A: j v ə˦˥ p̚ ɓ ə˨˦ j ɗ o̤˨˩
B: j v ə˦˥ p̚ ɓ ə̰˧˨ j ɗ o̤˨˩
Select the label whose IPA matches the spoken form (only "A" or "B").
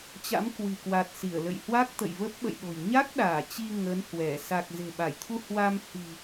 B